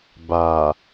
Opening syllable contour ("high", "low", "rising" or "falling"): low